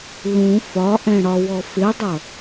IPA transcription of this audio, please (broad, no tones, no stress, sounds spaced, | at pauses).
l ũ f ɒ ʔ ɛ̃ ɽ ɒ w ɔ f ɪ dˤ ʌ